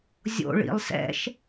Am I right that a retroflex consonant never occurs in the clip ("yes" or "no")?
no